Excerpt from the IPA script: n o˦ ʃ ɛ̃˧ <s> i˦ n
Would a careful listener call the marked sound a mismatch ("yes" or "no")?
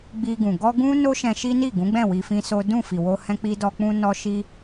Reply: yes